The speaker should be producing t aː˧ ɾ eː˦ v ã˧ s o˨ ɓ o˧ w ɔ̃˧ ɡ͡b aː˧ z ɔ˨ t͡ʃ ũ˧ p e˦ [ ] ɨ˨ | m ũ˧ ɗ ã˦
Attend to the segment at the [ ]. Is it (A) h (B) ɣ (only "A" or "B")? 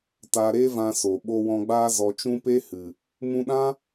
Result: A